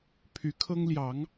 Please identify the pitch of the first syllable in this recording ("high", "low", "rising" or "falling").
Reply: rising